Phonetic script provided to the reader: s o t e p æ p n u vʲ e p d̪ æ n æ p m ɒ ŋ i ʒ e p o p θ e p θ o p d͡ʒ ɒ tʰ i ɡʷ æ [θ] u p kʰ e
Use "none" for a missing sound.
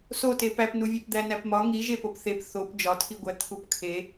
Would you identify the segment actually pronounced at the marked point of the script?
t̪ʰ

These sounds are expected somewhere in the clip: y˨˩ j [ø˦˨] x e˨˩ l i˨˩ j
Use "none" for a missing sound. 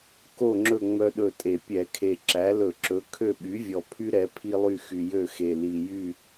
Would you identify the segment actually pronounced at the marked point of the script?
ø˦˨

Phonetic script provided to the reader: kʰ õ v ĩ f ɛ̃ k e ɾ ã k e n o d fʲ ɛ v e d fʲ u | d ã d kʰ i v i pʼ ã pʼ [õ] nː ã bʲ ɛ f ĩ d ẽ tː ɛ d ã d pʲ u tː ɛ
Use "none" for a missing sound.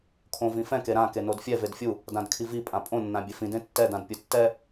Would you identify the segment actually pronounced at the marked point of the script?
õ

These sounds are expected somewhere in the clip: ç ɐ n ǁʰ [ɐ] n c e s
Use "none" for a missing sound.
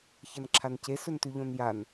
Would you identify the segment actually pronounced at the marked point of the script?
a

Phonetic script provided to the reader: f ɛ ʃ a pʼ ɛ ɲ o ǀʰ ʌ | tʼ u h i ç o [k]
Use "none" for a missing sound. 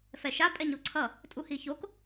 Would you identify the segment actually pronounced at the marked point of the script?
k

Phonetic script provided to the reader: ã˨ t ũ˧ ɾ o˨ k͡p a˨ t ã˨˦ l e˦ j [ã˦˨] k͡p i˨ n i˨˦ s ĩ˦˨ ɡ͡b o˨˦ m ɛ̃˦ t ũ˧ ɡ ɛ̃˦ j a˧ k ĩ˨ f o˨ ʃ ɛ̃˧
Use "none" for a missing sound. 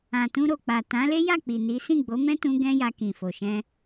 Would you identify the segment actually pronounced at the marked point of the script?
a˦˨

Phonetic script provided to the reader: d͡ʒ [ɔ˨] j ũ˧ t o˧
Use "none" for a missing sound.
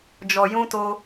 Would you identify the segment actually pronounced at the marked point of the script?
ɔ˨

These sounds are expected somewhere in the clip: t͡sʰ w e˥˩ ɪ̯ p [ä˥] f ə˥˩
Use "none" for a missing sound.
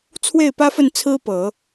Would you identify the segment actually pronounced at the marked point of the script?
ä˥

